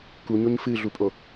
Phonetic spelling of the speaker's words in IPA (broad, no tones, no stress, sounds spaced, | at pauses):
k u ɲ o ɲ f ɨ ɮ u pʼ o